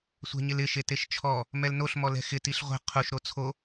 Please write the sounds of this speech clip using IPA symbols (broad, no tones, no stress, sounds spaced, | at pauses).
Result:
sʷ ɛ̤ ɲ ɪ l ɪ ʃ e t e ʃ t͡ʃʰ ɔ | m ɛ l n o ɬ m ɔ l ɛ̤ x ɪ t i ɬ ʁʷ ɛ̤ qʰ u ʃ ɾ o t͡sʰ o